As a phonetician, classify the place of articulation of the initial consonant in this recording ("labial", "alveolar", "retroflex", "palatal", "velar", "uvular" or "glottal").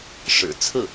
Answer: retroflex